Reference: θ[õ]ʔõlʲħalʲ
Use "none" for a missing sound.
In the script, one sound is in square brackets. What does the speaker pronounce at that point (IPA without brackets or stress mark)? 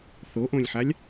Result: o